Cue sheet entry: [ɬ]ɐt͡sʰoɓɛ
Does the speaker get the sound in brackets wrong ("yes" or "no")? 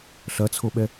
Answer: no